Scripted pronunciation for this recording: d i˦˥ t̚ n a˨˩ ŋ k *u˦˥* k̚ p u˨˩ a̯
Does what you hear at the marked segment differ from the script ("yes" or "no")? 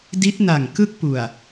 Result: yes